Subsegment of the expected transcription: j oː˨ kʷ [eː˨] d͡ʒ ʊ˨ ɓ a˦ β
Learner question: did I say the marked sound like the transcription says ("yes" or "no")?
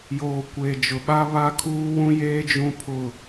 no